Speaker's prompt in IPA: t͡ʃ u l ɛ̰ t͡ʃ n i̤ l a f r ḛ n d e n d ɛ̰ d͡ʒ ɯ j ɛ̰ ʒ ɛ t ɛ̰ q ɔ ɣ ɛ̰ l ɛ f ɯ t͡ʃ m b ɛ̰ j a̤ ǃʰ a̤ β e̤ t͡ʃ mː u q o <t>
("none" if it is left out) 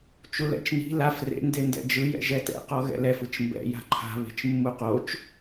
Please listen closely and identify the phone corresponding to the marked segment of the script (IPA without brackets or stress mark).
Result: t͡ʃ